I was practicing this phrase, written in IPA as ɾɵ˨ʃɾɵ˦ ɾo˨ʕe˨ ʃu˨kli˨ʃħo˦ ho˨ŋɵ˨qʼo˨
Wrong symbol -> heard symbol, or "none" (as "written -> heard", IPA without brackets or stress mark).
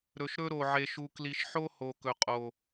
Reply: ŋ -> k